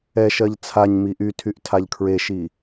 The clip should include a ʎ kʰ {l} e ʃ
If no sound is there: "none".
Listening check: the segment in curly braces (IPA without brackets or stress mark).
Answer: ɹ